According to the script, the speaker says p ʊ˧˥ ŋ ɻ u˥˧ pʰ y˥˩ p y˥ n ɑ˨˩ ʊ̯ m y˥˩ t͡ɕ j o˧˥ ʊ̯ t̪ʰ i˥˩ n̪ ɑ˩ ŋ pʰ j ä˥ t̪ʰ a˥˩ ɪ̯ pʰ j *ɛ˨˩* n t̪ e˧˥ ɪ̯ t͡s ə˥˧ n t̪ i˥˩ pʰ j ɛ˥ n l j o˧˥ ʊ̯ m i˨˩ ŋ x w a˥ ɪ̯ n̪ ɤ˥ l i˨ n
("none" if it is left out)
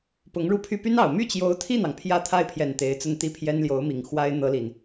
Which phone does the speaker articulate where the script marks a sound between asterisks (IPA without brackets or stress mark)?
ɛ˨˩